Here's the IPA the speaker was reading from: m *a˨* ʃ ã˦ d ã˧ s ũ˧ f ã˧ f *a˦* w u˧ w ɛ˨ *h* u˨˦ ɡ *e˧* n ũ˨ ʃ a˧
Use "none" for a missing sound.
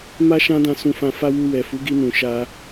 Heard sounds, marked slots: a˦, a˦, f, i˧

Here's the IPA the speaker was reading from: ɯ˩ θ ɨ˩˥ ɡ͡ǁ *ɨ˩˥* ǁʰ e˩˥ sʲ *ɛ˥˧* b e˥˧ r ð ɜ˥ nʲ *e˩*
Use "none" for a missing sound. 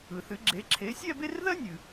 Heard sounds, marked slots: e˩˥, ɛ˥˧, ɨ˩

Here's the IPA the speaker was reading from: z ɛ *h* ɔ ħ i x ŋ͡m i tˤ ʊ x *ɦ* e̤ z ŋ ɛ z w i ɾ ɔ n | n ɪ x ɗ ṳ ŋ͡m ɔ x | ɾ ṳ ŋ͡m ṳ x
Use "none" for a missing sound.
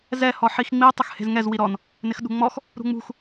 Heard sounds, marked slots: h, h

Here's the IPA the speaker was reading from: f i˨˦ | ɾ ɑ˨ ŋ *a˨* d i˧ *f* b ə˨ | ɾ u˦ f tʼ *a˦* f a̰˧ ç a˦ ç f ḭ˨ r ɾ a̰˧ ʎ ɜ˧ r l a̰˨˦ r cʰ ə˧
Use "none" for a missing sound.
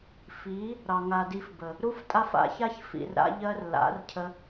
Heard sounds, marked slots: a˨, f, a˦

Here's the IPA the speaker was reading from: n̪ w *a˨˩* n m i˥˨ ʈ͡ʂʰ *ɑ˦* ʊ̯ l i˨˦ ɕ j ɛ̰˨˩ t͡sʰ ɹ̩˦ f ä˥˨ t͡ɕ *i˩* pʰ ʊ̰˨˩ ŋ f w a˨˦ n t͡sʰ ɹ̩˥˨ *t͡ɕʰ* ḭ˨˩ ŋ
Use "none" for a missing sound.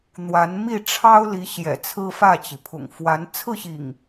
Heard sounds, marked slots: a˨˦, ɑ˦, i˩, ɕ

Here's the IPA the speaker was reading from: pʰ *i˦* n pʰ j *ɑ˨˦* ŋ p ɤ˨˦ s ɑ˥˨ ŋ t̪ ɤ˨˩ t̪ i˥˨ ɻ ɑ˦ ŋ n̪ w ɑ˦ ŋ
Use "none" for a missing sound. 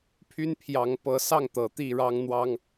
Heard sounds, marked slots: y˦, ɑ˨˦

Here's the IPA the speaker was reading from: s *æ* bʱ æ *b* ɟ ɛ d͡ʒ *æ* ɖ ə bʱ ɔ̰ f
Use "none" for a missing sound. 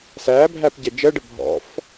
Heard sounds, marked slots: æ, p, ɜ

